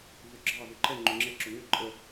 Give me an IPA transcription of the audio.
vøɡ͡ǁɑ vʊǃɛ ŋ͡ǃøŋ͡ǁɛǁʊ ŋø ǃʼə

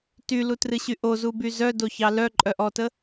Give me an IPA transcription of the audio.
tylutrɨɕy ʔozuby zœdoçɑ lœǃʼœʔɔtə

